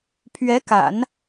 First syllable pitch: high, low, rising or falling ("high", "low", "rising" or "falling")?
rising